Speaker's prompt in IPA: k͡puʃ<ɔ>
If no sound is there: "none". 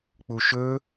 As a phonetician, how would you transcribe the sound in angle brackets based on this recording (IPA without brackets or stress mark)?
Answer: ɵ